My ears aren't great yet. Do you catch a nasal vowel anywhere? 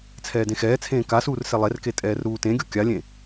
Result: yes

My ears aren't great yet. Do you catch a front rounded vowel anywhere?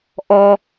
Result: no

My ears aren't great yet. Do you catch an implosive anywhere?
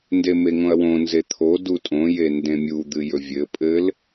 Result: no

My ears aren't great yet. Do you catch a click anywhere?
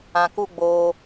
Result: no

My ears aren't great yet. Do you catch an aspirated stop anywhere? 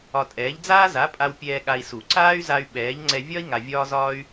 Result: no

